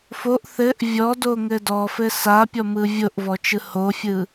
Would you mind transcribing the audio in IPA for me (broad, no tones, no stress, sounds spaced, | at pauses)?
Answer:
f o ʔ θ ɘ ʔ vʲ ɔ d o ŋ ɘ d ɔ f ɘ s a pʲ ɔ m ɯ vʲ o ʔ v ɔ t͡ʃ ɯ h o fʲ ɯ